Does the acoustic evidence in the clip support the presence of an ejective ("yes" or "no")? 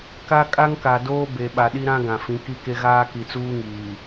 yes